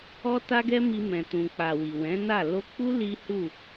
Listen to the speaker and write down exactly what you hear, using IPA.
ɔ˦ t a˦ ɡ ɛ˦ m i˧ m ɛ̃˨ t ũ˨ k͡p a˨ w i˨ w ɛ̃˨˦ n a˦˨ l o˧ k͡p u˦ l i˦ h u˦˨

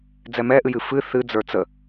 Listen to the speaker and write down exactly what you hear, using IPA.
d͡z ɛ m ɛ ʔ ɨ j ɨ f ɨ θ ɨ d͡z ə˞ t͡s ə

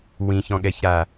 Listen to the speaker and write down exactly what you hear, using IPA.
w ĩ ç ɔ̃ ɠ ɛ ç ɾ a

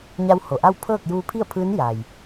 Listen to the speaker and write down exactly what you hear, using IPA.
ɲ a˧ w h o˩ ʔ a˥˨ w pʰ ɤː˥˨ k̚ j uː˧ pʰ i˥˨ ə̯ pʰ ɯː˧˥ n j a˩ j

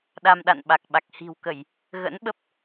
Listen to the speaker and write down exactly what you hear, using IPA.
ɗ a˧ m ɗ a̰˧˨ n ɓ a˨˩ k̚ ɓ a˨˩ k̚ h i̤˨˩ w k ə˧˩˨ j | ɣ ə̰˧˥ n ɓ ə˦˥ p̚

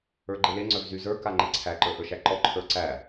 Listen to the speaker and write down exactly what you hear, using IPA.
ə˞ ɡ͡ǃ e l e ŋ͡ǀ œ v z y z ə˞ k a ŋ͡ǃ e ǀʰ æ ǃ ə˞ ʔ ə˞ ʃ æ ǃ ɔ ǃʰ ə˞ ǀ æ

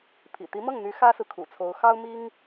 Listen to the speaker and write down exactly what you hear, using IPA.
pʰ ḭ˨˩ t̪ i˧˥ m ɤ˥˩ ŋ n̪ y˧˥ x ä˥ s ɹ̩˨ kʰ ṵ˨˩ t͡sʰ o˧˥ ʊ̯ x ɑ˥ ʊ̯ m i˥ ŋ

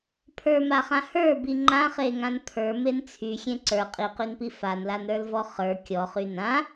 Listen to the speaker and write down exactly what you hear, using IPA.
pʰ ə˞ m a χ ã h ə˞ b i ŋ͡ǃ ã χ e ŋ ã n pʰ ə˞ m e n t͡sʰ y xʲ ẽ ǀ ə˞ qʼ i q y n p i f a n l a n ɾ ə˞ l v ɔ χ ə˞ kʲ ɔ χ y n ã

